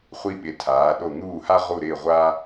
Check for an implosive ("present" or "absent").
present